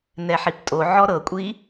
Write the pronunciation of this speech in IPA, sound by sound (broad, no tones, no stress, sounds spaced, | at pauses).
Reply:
n ɛ ħ i p tʼ o ʕ ɔ ɾ ɤ kʷʼ i